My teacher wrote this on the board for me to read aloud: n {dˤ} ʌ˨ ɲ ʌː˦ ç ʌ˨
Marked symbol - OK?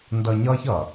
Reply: no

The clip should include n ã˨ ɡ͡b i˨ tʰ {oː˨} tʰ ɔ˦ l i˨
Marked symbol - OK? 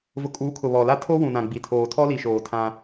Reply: yes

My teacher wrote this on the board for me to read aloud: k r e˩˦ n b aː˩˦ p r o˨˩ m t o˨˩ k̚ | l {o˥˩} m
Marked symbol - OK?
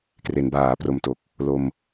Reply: no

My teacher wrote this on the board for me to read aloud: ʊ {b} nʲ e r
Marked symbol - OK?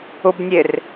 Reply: yes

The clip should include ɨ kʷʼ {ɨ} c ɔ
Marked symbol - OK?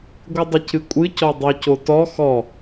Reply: yes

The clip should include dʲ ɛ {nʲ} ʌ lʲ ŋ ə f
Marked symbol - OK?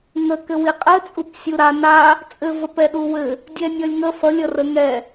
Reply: yes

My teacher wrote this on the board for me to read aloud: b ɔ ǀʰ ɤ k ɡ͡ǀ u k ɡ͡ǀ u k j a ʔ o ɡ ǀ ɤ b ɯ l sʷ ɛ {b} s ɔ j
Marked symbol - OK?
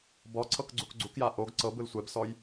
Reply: yes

